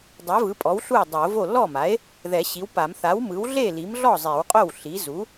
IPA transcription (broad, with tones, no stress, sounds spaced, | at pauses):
dˤ ɛ˩˥ v ɯ˩˥ pʼ ɔ˩˥ w ɬ u˥˩ e̯ dˤ o˨˩˦ v o˥˩ l ɔ˥˩ m a˩˥ e̯ | ð ɛ˨˩˦ ɕ i˩˥ w p a˨˩˦ m θ a˩˥ w m ɯ˩˥ w ɮ e˥˩ l i˩˥ m ɮ ɔ˥˩ zˤ e˨˩˦ w qʼ o˥˩ w ɬ i˩˥ z u˩˥